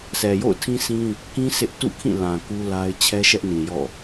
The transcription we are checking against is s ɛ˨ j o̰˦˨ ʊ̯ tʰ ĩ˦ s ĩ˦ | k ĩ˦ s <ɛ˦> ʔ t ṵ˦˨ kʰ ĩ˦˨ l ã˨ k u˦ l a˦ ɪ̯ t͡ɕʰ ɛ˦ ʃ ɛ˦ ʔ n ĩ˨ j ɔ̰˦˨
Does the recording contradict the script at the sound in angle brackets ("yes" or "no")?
yes